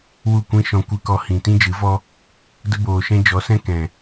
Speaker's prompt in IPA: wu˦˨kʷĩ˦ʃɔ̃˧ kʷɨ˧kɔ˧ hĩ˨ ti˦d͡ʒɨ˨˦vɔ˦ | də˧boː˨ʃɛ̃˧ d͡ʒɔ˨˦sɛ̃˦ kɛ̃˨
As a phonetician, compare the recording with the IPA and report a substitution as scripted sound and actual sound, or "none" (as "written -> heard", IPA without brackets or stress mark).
i˦ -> ĩ˦